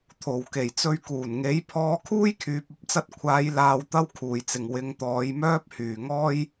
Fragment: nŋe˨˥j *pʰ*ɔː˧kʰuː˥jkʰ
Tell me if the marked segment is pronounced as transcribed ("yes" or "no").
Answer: yes